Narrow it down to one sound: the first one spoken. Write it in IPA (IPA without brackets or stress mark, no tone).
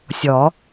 sʲ